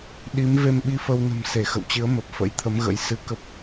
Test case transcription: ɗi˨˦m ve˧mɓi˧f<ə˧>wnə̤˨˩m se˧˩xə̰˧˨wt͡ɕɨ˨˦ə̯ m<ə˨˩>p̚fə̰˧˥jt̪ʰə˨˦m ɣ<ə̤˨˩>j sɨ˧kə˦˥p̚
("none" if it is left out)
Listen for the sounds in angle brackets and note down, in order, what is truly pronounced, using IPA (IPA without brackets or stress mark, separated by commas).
ə˧, ə˨˩, ə̰˧˥